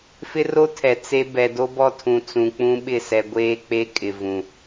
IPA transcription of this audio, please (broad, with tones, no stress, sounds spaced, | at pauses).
f ɪ˦ r o˦ tʰ ɛ˨ t͡s e˦ b ɛ˨ d o˦ b ɔ˦ tʰ ũ˨ t͡s ũ˨ k͡p ũ˦ ɓ ɪ˦˨ s ɛ˨ ɡʷ eː˦ k͡p e˦ kʼ ɪ˨ v ũ˨